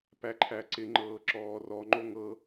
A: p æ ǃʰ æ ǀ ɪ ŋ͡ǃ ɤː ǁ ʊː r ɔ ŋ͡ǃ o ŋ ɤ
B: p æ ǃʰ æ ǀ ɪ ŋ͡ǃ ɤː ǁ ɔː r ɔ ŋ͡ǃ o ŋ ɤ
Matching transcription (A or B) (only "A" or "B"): B